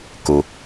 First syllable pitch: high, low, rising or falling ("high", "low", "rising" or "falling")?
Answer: low